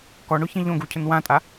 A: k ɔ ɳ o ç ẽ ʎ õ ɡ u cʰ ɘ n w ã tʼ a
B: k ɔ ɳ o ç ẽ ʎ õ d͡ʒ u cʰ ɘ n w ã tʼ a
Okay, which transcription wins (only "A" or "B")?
A